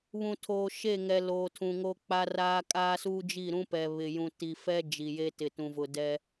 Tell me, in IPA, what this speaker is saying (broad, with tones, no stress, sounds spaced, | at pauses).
β ũ˨ tʰ oː˨ ʃ e˦˨ ŋ ɛ˨ l oː˨ tʰ ũ˨ ŋ o˦ k͡p a˦ r aː˦ kʼ aː˦ s uː˦ d͡ʒ i˦˨ ɾ ũ˦ p ɛ˨ β ɪ˨ j ũ˨ t i˨ f ɛ˦ d͡ʒ i˨ j e˦ t ɪ˨ t ũ˨ v ʊ˨ d ɛ˦